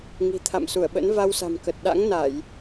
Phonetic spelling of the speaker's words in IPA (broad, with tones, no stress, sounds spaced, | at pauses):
ŋ i̤˨˩ t̪ʰ a̰˧˨ m s u˧˩ ə̯ ɓ ə̰˧˥ n v a˧ w s a̤˨˩ m k ə˨˩ t̚ ɗ a̰˧˥ ŋ n a˧˩˨ j